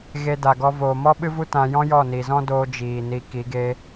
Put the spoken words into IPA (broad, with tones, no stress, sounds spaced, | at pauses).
ɣ e˧ d a˨ ɡ ɔ˧ v oː˨ m ɔ˦ ɓ ɨ˦ v u˦ t ã˧ j ɔ̃˦ j ɔ˦˨ n i˨ z ɔ̃˦ d oː˦ d͡ʒ iː˨ n i˧ k i˨˦ ɡ e˦